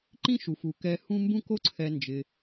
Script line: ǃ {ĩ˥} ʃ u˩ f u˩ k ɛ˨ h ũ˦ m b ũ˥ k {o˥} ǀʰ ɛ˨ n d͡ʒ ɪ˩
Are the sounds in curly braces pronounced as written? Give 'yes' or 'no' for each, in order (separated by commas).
yes, yes